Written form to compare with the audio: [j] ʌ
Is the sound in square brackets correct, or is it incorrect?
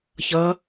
incorrect